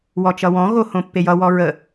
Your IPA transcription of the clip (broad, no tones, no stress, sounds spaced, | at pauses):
w ɔ t͡ʃ ʌ w ɔ̃ ɣ o h õ pː e j ʌ w ɔ ɹ ə